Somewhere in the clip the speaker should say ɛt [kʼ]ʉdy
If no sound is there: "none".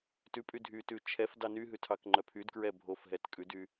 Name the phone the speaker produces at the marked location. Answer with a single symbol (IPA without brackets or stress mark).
kʼ